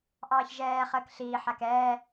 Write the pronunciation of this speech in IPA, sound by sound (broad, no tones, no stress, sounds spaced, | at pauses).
ʔ ɑː ç ʒ ɛː χ əː k ɬ iː ħ a k ɛː